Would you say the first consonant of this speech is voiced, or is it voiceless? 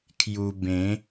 voiceless